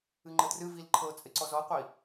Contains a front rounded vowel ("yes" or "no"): no